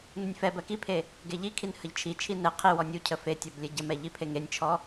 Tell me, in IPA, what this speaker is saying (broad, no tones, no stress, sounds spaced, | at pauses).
n u nʲ f ɛ b ɜ k i pʰ e | ɡ e ʎ i kʰ i n h ə ʎ t͡ʃʰ i t͡ʃʰ i n ɛ qʰ i w ɔ nʲ u cʰ ə f e tʲ ɔ b lʲ ɛ ɟ ə m ɛ ʎ i pʰ e ŋ e nʲ t͡ʃʰ ɔ